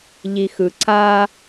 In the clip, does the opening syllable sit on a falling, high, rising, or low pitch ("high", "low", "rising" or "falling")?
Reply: low